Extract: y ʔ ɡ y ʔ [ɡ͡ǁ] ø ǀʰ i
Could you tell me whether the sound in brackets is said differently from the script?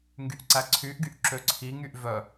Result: yes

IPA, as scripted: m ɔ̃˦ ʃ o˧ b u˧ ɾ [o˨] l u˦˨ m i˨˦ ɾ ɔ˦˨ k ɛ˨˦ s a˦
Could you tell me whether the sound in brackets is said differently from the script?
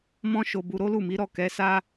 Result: yes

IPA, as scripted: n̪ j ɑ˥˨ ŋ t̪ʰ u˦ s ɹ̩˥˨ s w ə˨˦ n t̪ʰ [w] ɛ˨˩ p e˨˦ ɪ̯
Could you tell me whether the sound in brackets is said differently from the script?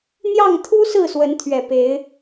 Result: yes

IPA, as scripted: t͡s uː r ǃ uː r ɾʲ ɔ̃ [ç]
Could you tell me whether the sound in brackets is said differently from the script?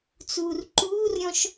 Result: yes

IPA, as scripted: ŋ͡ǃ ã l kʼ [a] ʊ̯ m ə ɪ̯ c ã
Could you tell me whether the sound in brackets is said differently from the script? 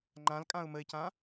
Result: yes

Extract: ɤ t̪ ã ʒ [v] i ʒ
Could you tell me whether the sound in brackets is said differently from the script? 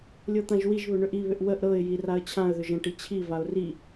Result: yes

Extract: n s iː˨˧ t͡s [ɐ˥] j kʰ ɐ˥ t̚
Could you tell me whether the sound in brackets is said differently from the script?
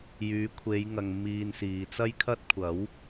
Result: no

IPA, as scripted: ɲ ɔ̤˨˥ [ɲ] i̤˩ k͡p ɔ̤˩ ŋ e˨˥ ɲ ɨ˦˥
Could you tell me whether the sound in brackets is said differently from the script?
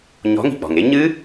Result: yes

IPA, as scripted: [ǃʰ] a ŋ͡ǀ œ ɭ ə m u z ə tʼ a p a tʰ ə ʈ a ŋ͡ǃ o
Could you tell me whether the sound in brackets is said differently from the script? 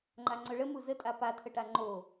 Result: yes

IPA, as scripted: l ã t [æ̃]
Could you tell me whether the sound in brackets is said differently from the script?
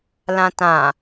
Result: yes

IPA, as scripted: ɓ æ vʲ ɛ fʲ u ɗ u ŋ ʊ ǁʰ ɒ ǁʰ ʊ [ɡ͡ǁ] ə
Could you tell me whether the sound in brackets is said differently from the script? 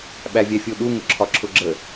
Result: no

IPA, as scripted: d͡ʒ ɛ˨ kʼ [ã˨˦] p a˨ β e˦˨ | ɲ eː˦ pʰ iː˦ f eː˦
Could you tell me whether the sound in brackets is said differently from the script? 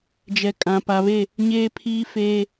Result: yes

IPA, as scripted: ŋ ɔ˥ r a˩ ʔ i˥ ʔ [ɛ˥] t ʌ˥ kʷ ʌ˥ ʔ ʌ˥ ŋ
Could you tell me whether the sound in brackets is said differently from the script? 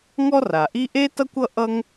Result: yes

